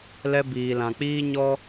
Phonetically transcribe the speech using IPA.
lɛ˧ biː˨lã˨k͡piː˦ɲɔ˦

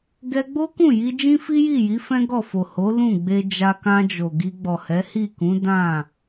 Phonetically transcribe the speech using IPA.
ɡɛ˧ɡ͡bo˦kũ˦˨ ji˧ d͡ʒĩ˦fi˦ji˦˨ji˨˦ fɛ̃˦ɡɔ˦˨ fo˨ho˨˦ lũ˦˨ɡ͡be˧ d͡ʒa˧kã˧d͡ʒo˨ ɡi˧ɡ͡bɔ˨hɛ˨˦ hi˦˨kũ˨˦ dã˦˨

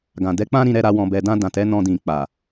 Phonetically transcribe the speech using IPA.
ɡã˨dɛ˨˦k͡pã˦ ɾĩ˧ɾɛ˧ɾa˧ wɔ̃˨bɛ˨dã˧ dã˨tɛ˨˦ nɔ̃˧dĩ˨ k͡pa˨

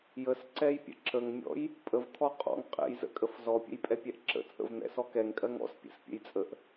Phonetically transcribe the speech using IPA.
jəsǀɛjpʲə̰ ǁəŋmʲɔ̰j | pʼəvt̪ʰɔ qʼɔ̰ŋ qʼɛ̰jzə̰kʼəf zɔpʲə̰jpʼɛpʲɛʔ ǁə̰ t͡sʼə̰vn̪ɛ̰sɔ kɛŋkʼɜŋ ɔ̰spʲɛ̰spʲə̰jt͡sʼəʔ

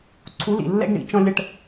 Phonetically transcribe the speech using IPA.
ǀʰu˨˦lḭ˨lːɛ̰˦ɡɳḭ˨ t͡ʃɔ̃˧lʲə˧ʈ

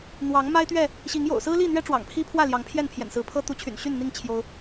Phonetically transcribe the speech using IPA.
n̪wɑ˨˦ŋ ma˦ɪ̯t̪ɥɛ˥˨ | ɕi˨˦ŋ jo̰˨˩ʊ̯sɹ̩˦li˥˨n̪ɥɛ˦ ʈ͡ʂwɑ̰˨˩ŋpʰi˦pʰwä˥˨ljɑ˨˦ŋ pʰjɛ˥˨npʰjɛ̰˨˩nsɹ̩˨˦pʰɤ˦ t̪u˨˦t͡ɕʰy̰˨˩nɕy˥˨nn̪i˥˨ŋ t͡ɕʰjo˦ʊ̯

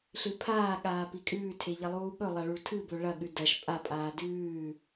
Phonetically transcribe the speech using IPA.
ɬɨpʰaːɠaː pikʼʉːtʰe ʎɐlˠuːɠɵlˠɐ ɭuɭtʰɨbɵ ɭɐɠʉ dɐʃ pʼapʼaː dʉː

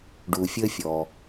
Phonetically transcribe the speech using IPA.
ɖu˩fʲə˧ fʲɔ˩

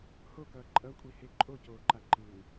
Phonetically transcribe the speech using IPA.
hokʌː ǃʼʌkʷʼihe ǃʼocoːǃa ǃɯː

